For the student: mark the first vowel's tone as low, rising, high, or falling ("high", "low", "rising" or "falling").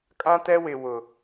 high